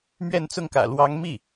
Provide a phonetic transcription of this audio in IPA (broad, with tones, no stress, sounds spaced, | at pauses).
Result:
m ɥ ɛ˥˧ n t͡s ʊ˥˩ ŋ k ä̰˨˩ l w ɑ˧˥ ŋ m i˥˩